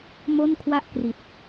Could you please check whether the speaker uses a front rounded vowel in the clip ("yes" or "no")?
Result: no